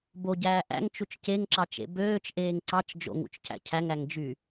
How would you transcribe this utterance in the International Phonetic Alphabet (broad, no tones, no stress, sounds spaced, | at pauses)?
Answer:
b o ɟ æː ʔ æ̰ ŋ t͡ʃ u t͡ʃ c e ŋ ǁ ɑ t͡ʃ ḛ b øː t͡ʃ ʔ eː ŋ ǀ ɑ t͡ʃ d͡ʒ o̰ ŋ ṵ t͡ʃ cʰ æ̰ cʰ æ ŋ æ ŋ d͡ʒ y